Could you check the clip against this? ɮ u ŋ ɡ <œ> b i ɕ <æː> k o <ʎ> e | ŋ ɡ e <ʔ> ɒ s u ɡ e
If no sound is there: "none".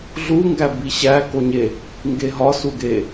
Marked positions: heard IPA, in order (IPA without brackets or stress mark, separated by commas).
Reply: æ, æ, ɲ, ɦ